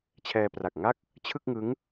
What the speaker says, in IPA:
t͡ɕʰ ɛː˧ p r a˨˩ k̚ ŋ a˥˩ k̚ | t͡ɕʰ ɯ˥˩ k̚ ŋ ɯ˦˥ ŋ

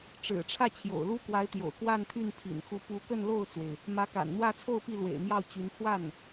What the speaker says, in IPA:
ʈ͡ʂ ɻ̩˨˩ ʈ͡ʂʰ ä˥˩ t͡ɕʰ j o̰˨˩ ʊ̯ l u˥ k w a˧˥ ɪ̯ t̪ j o̰˨˩ ʊ̯ k w a˥˧ n t̪ʰ y˥˩ n pʰ ḭ˨˩ n x u˧˥ p u˧˥ k ə˥˧ n l o˥˩ ʊ̯ t͡s w e˩ ɪ̯ | m ä˧˥ k a̰˨˩ n n̪ w ä˥˧ t͡sʰ o˥˧ ʊ̯ p i˥˩ l w ḛ˨˩ ɪ̯ m j ɑ˥˩ ʊ̯ t͡ɕ y˧˥ n pʰ w a˥˩ n

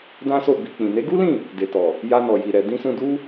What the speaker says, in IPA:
d ã˦ s o˦˨ b i˧ k͡p ĩ˨ n e˨˦ ɡ u˦ l ĩ˦˨ | d e˨ t ɔ˨ | j a˧ n ɔ˨ j i˨ ɾ ɛ˨ d ĩ˧ s ũ˧ d u˦

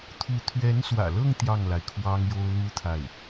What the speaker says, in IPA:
t̪ʰ u˧˥ t̪ʰ ɥ ɛ˧˥ n s w ä̰˨˩ l ɤ˥˧ ŋ t̪ j ɑ˥˩ ŋ l a˩ ɪ̯ kʰ w ɑ˥ ŋ j o˥ ʊ̯ l u˥ t̪ʰ a˥˩ ɪ̯

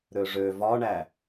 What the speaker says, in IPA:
ɾ ø ʐ ø v ɒ ɳ æ

